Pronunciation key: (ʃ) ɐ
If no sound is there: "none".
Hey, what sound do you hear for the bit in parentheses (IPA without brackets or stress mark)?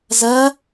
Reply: z